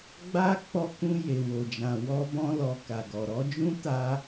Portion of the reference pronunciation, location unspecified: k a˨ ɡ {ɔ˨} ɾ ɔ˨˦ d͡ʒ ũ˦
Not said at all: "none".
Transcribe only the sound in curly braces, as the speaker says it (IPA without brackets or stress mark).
ɔ˨